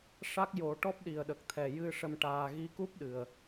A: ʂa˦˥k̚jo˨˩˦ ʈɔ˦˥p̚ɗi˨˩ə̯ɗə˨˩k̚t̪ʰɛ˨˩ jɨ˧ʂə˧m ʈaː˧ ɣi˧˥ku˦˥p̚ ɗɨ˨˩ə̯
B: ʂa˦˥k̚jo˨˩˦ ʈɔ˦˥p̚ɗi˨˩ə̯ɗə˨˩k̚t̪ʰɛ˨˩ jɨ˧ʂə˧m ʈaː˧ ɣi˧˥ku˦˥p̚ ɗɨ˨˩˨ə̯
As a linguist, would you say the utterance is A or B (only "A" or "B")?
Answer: A